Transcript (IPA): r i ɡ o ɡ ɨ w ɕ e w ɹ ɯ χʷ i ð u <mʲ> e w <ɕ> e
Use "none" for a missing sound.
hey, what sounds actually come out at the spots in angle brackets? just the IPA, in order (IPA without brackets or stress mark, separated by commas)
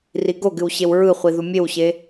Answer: mʲ, ɕ